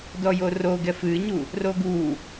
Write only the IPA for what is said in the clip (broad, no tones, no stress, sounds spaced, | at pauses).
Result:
d ɔ j o r o ɡ ɛ f ɨ ɲ u | r o ɡ u